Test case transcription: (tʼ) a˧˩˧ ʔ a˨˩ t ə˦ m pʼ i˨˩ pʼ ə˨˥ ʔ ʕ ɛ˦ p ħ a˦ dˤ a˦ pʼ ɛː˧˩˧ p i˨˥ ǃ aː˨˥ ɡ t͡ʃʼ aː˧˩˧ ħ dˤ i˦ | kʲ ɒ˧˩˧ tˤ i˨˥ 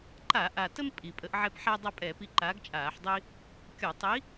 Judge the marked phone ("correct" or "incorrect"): incorrect